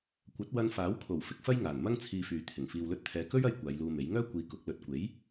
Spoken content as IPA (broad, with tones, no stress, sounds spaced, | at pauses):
kʷ ɐ˨˥ t̚ w ɐ˧ n f aː˨˥ w kʰ o˨˩ w f ɪ˨˥ k̚ f ɐ˥ j ŋ aː˨˩ n m ɐ˥ ŋ t͡sʰ iː˧ f yː˨ t̪ʰ ɪ˨˩ ŋ f iː˨ w l ɵ˧ t̚ t̪ʰ ɛː˨ k ɵ˥ ɥ ɐ˧ j kʷ aː˨˧ j l uː˧ m e˨˥ j ŋ œː˥ kʷ iː˧ k ʊ˨˥ k̚ l ɵ˨ t̚ kʷ e˨˥ j